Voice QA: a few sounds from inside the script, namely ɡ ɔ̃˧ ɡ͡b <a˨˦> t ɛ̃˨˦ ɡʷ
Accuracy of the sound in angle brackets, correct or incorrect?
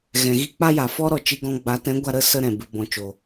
correct